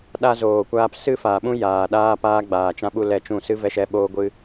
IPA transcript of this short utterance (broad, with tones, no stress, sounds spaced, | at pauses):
ɗ a˧ z oː˨ kʷ aː˧ p s ɨ˦ f aː˨ ɓ ũ˦ j aː˨ ɗ aː˦ p aː˦ ɡ͡b aː˨ t͡ʃ ã˧ ɓ u˧ l ɛ˧ t͡ʃ ũ˦˨ s ɨ˦ v ɛ˧ ʃ ɛ˧ ɓ oː˦ ɡʷ ɨ˦